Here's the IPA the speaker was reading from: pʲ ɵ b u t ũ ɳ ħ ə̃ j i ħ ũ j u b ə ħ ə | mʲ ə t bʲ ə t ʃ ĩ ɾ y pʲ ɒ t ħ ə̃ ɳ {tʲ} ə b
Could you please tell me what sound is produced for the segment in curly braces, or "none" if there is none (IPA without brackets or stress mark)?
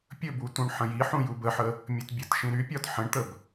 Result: t̪